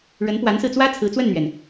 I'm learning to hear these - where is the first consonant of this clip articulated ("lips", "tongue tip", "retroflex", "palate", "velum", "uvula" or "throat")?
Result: retroflex